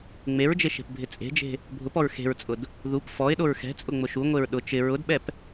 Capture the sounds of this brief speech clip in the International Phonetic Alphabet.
ŋ͡m e ɹ d͡ʒ e ʃ e̤ p bʱ ɪ t͡sʼ e̤ d͡ʒ e̤ | bʱ ʊ p ɔ ɹ x e̤ ɹ t͡sʼ ʊ d | ð u p f ɔ ɪ̯ ɗ o ɹ x ɛ̤ t͡sʼ ʊ ŋ͡m ʊ ʃ u ŋʷ e ɹ ɗ ʊ t͡ʃ ɪ ɹ ʊ d ɓ ɛ p

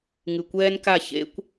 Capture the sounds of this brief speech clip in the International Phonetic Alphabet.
ŋ ɨ˨ kʷ ɛː˦ n k a˦˨ ç ḛ˦ kʷ

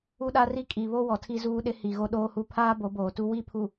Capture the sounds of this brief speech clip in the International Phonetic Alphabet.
u˦ ɗ a˦ r i˦ kʼ i˨ β o˦ w ɔ˨ tʰ i˦ z uː˦ ɗ ɪ˦ h i˨ ɣ o˦ ɗ oː˦ h u˦ pʰ aː˦ b o˨˦ b oː˨ t u˦ w i˦ pʰ u˨

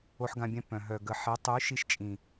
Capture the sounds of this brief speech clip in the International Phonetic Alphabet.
o˧ ħ ɡ ã˧ bʲ ɛ̃˧ p œ̃˨ ɦ œ˨ ɡ ə˨ ħ e˨˦ tˤ y˨˦ ʃ i˧ ʃ t͡ʃʼ ĩ˨

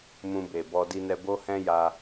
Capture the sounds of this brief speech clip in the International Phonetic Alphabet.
m ũ˧ b e˨ b ɔ˧ d i˧ n ɛ˧ b o˦ h ɛ̃˦ j a˧

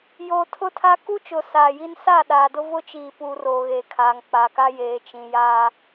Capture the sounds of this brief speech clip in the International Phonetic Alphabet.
j oː˨ tʰ ʊ˦ tʰ a˦ k u˦ t͡ʃ ʊ˨ s aː˨ j i˦ n s a˦˨ ɗ aː˨ d ʊ˦ v ʊ˦ t͡ʃ iː˨ p uː˨ r oː˨ ɣ eː˨ kʰ aː˨ ŋ k͡p a˨ k a˦ j eː˨ t͡ʃ ĩ˨ j aː˦

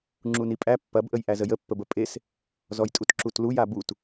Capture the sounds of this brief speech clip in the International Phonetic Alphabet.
ŋ͡ǁ u n i pʼ æ pː ɐ b ʔ ə j ʔ æ z ə j ə pː ə b ə pʼ e s | z ɔ j tʼ u t ǁ u t l u j a b u t

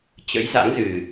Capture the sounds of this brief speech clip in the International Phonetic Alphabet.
t͡ɕ ə̰˧˥ j z a̰˧˥ ŋ z ɨ˨˩

